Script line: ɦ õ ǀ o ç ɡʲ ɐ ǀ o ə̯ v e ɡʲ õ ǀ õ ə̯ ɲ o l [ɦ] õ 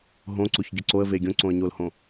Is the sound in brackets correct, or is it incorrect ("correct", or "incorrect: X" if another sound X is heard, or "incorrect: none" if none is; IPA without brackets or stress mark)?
incorrect: h